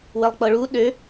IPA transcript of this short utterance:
wəlˠk͡pɤɭu ɗø

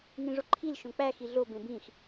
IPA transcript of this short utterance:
ŋĩʐoǃʰil ʃõk͡pæ xiɮo bẽbĩx

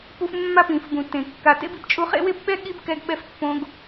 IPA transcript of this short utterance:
pu˦fmːa˥ pĩ˩fbũ˩ tẽ˩kːa˨tḛ˥bi˨b t͡ʃʼu˦χḛ˥we˥bɓɛ˥ ɠi˥b kɛ˦ɡɓɛ˦f pːõ˦ɡ

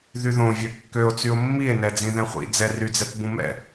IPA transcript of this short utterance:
ðyðõvʲø kːøo̯t͡syo̯ mːie̯nɛ d͡zĩðɛ̃χʷḭ d͡zɛryd͡zɛt bũmɛ̰

